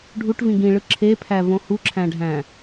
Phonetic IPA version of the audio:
ɖʱ u ʈ v ĩ ɡ ĩ ɭ ɯ ǁʰ e pʰ æ v õ h u ǁʰ æ̃ ɖʱ æ̃

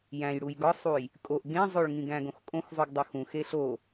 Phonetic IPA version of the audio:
j æ̃ j ɽ u j ɡ ɒ sˤ u j | kʼ o ʔ ɡ ẽ zˤ o ɭ ŋ ĩ ɡ æ̃ ɡ õ x kʼ õ x zˤ u ɡ dˤ o x ũ x e ɬ o

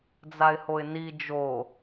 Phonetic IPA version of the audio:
d͡z a ɪ̯ h o ɪ̯ n i d͡ʒ o

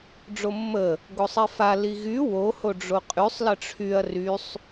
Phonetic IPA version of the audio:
ɖ͡ʐ o mː ə | ɡ o sˤ i f a l i ɣ y w o h o ɖ͡ʐ o qʼ y sˤ l ə ʈ͡ʂʰ y ɐ̯ r y sˤ

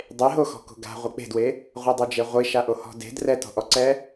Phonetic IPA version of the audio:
dˤ e ɦ o x ɔ̤ k o̤ ɡ a̤ ʁʷ e k͡p e̤ d w e | ʁʷ ɤ dˤ o d͡ʒ e ʁʷ i ʃ a ʔ o h ɔ̤ d e̤ d r ɛ t ɔ̤ ʔ ɔ ǀ ɛ

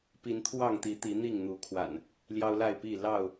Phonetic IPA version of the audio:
p i˨˦ n t̪ʰ w ɑ˥˨ ŋ t̪ i˨˦ t̪ i˨˦ n̪ i˥˨ ŋ n̪ u˨˦ kʰ w a̰˨˩ n | l j ɑ˦ ʊ̯ l a˥˨ ɪ̯ p i˥˨ l ɑ˥˨ ʊ̯

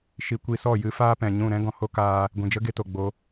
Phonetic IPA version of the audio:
ʃ i˧ kʷ i˧ s ɔ˦˨ j ɨ˦ f aː˦ p ɛ̃˨ ɲ ũ˦˨ ɾ ɛ̃˦ ɡ ɔ̃˨ h o˦ k aː˧ | ɡʷ ĩ˨ d͡ʒ ə˦ ɡ e˧ t o˨ ɡ͡b o˧

